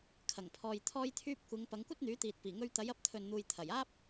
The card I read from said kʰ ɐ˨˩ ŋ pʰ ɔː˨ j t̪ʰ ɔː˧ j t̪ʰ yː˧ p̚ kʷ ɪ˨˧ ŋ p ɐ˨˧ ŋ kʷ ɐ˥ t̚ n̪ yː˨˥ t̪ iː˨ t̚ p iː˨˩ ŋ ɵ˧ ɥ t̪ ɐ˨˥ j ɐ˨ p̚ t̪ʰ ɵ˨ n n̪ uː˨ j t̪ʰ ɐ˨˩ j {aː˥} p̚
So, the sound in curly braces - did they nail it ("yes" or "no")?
yes